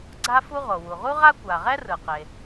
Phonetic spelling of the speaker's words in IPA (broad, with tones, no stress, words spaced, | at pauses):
ɡ͡ǀa˥fu˥ ʁo˩wu˩ʁu˥ʁa˥ kʷa˩ʁɛ˥rɯ˩qe˩